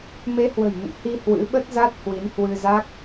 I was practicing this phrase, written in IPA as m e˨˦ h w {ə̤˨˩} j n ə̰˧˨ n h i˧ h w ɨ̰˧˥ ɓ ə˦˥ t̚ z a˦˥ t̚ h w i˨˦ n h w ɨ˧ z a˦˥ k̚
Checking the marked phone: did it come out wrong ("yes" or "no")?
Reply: no